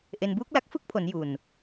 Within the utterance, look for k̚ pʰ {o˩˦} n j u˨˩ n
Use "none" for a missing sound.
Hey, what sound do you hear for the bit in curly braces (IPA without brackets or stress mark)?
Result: o˩˦